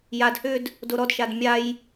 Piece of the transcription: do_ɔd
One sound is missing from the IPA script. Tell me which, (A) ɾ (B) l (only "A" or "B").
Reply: A